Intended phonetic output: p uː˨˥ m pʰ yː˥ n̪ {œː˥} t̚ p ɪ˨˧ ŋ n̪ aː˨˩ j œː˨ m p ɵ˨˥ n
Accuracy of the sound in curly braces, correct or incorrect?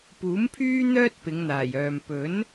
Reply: correct